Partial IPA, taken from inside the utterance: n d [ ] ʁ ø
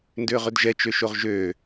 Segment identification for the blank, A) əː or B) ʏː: B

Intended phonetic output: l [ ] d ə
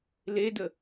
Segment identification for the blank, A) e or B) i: A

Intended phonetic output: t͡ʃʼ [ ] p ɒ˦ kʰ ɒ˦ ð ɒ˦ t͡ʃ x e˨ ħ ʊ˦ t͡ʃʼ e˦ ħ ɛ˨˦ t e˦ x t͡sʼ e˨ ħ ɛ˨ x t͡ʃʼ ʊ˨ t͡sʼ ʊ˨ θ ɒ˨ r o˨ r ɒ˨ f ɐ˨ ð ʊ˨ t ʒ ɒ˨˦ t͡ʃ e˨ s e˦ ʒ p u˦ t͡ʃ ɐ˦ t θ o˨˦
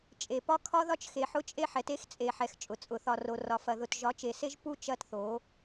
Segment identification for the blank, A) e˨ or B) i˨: A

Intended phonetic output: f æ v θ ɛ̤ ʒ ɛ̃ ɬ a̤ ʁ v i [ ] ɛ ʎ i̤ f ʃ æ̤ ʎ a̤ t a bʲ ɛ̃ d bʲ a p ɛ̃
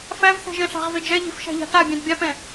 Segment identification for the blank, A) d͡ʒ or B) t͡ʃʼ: A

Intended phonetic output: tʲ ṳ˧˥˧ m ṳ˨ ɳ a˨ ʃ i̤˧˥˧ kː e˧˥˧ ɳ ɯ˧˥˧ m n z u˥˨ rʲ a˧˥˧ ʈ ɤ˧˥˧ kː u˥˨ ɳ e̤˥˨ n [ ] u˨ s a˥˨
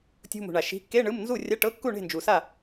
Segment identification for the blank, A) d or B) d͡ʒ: B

